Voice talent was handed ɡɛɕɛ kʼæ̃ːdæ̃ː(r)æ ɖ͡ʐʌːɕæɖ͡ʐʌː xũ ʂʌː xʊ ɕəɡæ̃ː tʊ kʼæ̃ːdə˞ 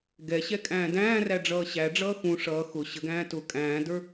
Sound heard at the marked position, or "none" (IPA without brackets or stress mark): r